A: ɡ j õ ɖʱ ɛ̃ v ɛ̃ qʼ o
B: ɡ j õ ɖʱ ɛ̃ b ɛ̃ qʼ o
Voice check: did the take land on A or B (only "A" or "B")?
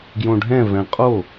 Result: A